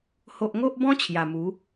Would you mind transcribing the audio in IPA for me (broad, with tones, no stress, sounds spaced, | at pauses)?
h o˦ ʔ ŋ o˦ ʔ b ɔ̃˦ t͡ɕʰ j a˨˩ m u˨˦